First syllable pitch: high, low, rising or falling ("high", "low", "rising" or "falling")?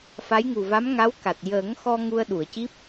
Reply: rising